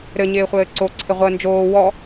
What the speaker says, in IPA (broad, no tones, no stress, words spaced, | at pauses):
ɾɘɲɪːχʷɘː ǀoǀʰɪʁʷəː nd͡ʒoː wɔ